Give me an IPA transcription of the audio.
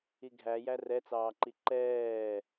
iɡʱæjæ rɛt͡sɑːǃi ǃɛː

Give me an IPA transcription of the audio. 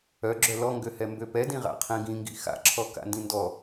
œɡ͡ǁœ lɔŋɡøhɛ mbøpɛdĩ ʁa̰qʰĩɡĩŋɡḭ xa̰ǁʰɔ ka̰ndĩndɔ

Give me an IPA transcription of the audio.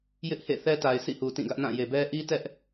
jɪ˦ʔhḛ˦˨ θɛ˦ta˨ɪ̯ sʰḭ˦˨hu˨ tĩ˦˨ɡä˦ʔnã˦˨ je˨bɛ˦ ʔi˦tɛ˦ʔ

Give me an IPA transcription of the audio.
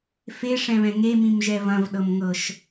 feʂɛ̃βɛ̃ ŋemĩmʒɛ vɐ̃vɗɤmŋɤʃ

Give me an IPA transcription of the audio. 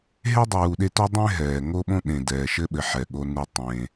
ɦe˥dˤuː˨ɗe˦to˥ dˤẽ˦ ɦɛː˩ŋo˦ɓõ˦ ɗẽ˩dɛː˩ʃɘ˦ɓɘ˩ ħɛ˩ɠo˨ nu˨ tˤẽ˩

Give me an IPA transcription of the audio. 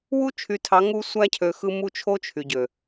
wu˦t͡ʃʰy˨tʰɑ˨˦ ŋu˦ sʷæ˦cʰø˨xɯ˦ mu˦t͡ʃʰo˦t͡ʃʰy˨ɟø˨

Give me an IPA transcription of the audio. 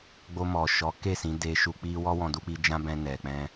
ɡ͡bo˧mɔ˨ ʃɔ˨˦ke˦˨ sĩ˨˦ de˧ʃu˧k͡pi˦ wɔ˦wɔ̃˧ du˧k͡pi˧ d͡ʒã˦bɛ̃˧ nɛ˨k͡pɛ̃˧

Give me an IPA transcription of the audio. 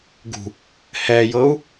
ɡṳ | hɛjɤu̯

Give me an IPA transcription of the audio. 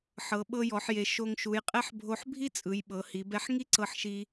ħɤ˩˧ɓɤ˧jɔ˩˧ħje˩˧ ʃo˧ŋʃu˩˧jqʼɛ˥ħbʱo˧˥ħ bʱi˥t͡sʼɯ˩˧j ɓɤ˩˧hi˩˧bɛ˧ħ ŋi˥ǀɤ˧ħʃi˧

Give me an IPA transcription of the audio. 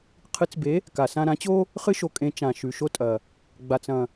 qʰɨ˨˥t͡sbe˨˥ | ka˨˩sã˧ɾã˨˥t͡ɕo˥ | χɨ˥ʃo˨˥ kʼẽ˨˥t͡ʃã˨˩ ʃʉ˨˩ʃo˥tʼɐ˨˩ | ɡ͡ba˨˩t͡sɐ̃˨˩

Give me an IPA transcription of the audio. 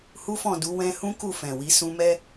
hu˦fɔ̃˦˨du˨˦ wɛ̃˧ hũ˦ku˦˨fɛ̃˨wi˨˦ sũ˧mɛ˦

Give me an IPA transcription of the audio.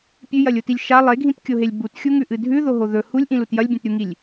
pʲʉjɐlʲotilʲ ʃa lˠeɡʱĩtkʲoɦelʲ butxʲuŋʉʔɨ dʱʉðoɦo ðɵ hulʲʔĩlut jɐlʲbʲẽtɾʲuŋilʲ

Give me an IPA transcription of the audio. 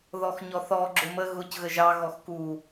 ðɔxɲɔθɔ ɡ͡ǁʊmə ɣʊc ɣəʒɑ ɣɔxku

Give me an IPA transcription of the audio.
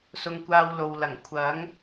sʊ˧ŋkʷaː˧wlo˨wlɐ˨˩ŋ kʷʰɐ˨˥ŋ

